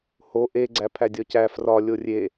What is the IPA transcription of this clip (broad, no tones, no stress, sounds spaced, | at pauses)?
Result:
h o ʔ e ɡ͡ǀ æ pʰ æ dʲ ɒ c æ f r ɒ lʲ o rʲ e